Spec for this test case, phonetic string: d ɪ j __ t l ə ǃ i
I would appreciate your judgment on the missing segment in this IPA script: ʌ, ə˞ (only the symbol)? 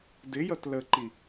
ʌ